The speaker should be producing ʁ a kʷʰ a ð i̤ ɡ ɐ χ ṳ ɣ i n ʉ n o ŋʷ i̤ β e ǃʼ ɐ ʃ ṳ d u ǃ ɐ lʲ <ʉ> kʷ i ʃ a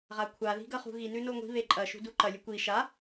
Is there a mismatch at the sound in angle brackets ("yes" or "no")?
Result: no